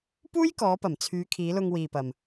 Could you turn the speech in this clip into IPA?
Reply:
puː˥jkɔː˨˧pɐ˨˩m t͡sʰyː˨˧kʰiː˨˧ lʊ˧ŋwiː˨pɐ˨m

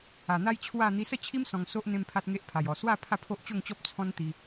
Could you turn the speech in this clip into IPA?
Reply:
a˨˩n̪a˦jt͡ɕʰwa˥˧ n̪i˧sə˥˧t͡ɕʰi˦m sɔ̃˧ŋso˦ʔ n̪ẽ˦mpʰa˦t̚ŋe˦ʔpʰa˨˩j ɔ˨˩swa˥˧ pʰa˥˧pʰo˦ʔt͡ɕo˥˧ŋt͡ɕɔ˦p̚ t͡sʰɔ̃˦n t̪i˧

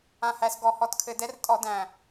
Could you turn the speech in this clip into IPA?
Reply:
ã˨˩hæ˨˩sɡɔ˧˩˧ hɔ˨˩tkʰɘ˧˩˧dɛ˨˥r tʼɔ˧˩˧dæ̃˨˩

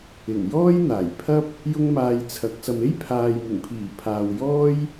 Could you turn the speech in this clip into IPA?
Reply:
ɪ˨˩ŋ jɔː˥jn̪aː˨˩jpʰɐ˥p̚ | jʊ˥ŋmaː˧jt͡sʰɐ˨˥k̚sɐ˧m e˥jpʰaː˨jmɪ˨˩ŋpʰiː˨˩ pʰaː˨wjɔː˥j

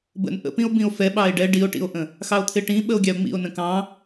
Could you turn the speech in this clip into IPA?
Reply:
bə̰n ʔə̰pĩo̯ bĩo̯fɛ ɓɑe̯ɖɛ ɖio̯ʈḭo̯ʔə̃ | xɑo̯t̪ʰɪʈĩ ɓəo̯ɡʲɑo̯ŋ͡mḭo̯ nə̃kɑ̃

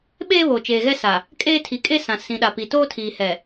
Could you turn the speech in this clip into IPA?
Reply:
ɓeː˦βoː˨t͡ʃeː˨ɣɛ˦ sa˨ | kʼeː˦tʰi˨˦kʼe˦ sã˨ sĩ˨ɗa˨pi˨ toː˦tʰiː˨hɛ˨

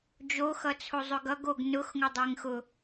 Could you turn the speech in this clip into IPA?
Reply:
d͡ʒoxʌt͡sʰo zˤɵɡʌɡoɡ nʊxŋʊ dˤeŋxʊ

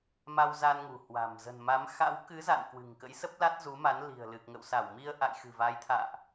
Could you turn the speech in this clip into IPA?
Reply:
ma˧wza˧n ŋṳ˨˩hwa̤˨˩m zə̤˨˩n ma˨˦m xa̰˧˥w kɨ˨˦za̰˧˨n kwɨ̤˨˩ŋkə̰˧˥jsə˦˥p̚la˦˥t̚ zu˨˦ma˨˦n li̤˨˩ə̯ lɨ˨˩k̚ŋə̰˧˨w sa˧˩wmi˧ə̯ʔa̰˧˨j xɨ̤˨˩va˨˦jt̪ʰa̰ː˧˨ʔ

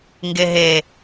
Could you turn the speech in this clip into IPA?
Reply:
ŋɡeɦe

